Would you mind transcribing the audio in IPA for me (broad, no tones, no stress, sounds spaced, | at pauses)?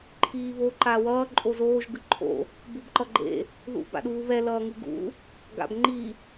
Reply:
ǃʰ iː β o ǃ a w ʌː ǃʼ o z oː ʒ ɡ ɯ ǃʰ o̰ | b u b ǃ ʌ ɡ͡ǃ ḛ | ð ṵ b a̰ ɗ uː β ɛ l ʌː ŋ ɯ ɡ ṵ | ɡ a̰ b ŋ͡ǃ i